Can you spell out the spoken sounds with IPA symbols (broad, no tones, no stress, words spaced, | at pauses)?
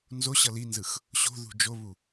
nzoɕʌ linzɯx | ɕo̤ðṳ d͡ʒoβu